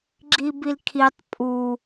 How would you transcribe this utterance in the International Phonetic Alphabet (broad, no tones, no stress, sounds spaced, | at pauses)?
ɡ͡ǁ i b i l kʰ i tˤ pʼ u